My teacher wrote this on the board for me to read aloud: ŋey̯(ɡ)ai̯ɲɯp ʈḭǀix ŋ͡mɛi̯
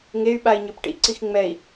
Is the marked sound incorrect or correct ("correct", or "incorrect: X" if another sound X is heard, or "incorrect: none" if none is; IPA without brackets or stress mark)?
incorrect: ɓ